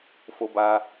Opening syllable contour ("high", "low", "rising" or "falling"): high